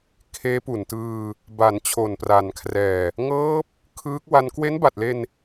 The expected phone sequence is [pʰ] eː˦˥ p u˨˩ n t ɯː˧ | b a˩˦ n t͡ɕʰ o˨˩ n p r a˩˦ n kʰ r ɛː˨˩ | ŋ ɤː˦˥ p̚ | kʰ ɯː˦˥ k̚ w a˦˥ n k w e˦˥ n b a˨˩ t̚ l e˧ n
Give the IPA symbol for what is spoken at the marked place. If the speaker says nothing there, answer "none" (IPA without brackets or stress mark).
kʰ